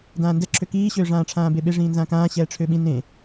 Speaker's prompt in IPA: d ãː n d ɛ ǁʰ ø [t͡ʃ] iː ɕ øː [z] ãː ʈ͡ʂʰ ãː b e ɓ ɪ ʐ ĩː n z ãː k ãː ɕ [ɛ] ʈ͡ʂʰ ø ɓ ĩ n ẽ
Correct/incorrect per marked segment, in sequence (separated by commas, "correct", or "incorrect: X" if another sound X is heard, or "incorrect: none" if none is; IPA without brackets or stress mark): incorrect: k, incorrect: ʐ, incorrect: ɛː